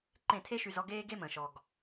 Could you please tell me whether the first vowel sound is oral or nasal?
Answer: nasal